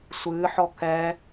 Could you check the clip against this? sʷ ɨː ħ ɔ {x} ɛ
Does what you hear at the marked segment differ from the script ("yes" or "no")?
yes